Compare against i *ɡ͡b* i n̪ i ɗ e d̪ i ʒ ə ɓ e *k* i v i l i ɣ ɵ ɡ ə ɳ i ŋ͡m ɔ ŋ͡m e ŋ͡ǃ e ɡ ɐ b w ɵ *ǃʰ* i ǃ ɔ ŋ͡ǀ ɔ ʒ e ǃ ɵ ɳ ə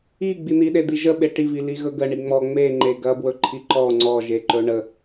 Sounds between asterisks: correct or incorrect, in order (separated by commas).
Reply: correct, incorrect, correct